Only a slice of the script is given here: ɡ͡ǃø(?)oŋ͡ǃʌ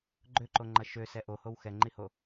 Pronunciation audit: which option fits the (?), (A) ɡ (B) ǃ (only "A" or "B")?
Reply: B